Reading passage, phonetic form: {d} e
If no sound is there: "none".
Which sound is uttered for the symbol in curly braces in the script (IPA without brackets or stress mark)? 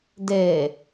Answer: d